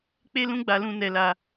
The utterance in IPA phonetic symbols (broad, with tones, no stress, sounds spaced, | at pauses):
k͡p e˦ l ũ˦ ɡ͡b a˧ l ũ˧ n ɛ˧ l a˧